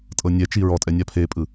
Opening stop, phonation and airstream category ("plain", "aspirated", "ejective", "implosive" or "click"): ejective